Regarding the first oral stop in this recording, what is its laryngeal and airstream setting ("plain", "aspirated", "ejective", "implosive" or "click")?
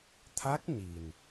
aspirated